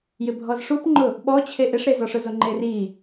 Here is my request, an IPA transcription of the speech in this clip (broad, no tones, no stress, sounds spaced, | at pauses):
j ɪ bʱ ɔ z ʂ u p ŋ͡ǃ ʊ | ɓ ɔ t͡ɕʰ e ʔ ɪ ʂ ɾ e z ɔ ʂ ʊ z o ŋ͡ǃ e r i